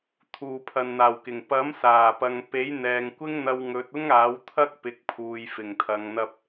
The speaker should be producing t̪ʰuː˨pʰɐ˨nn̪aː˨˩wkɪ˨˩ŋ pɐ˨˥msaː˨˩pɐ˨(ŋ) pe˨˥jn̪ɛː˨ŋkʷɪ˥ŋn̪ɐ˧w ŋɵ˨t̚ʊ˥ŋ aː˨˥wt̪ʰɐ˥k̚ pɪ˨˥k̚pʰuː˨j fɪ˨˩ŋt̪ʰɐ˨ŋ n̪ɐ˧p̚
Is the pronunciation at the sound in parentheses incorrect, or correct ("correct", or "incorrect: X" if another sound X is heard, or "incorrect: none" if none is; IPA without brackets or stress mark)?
correct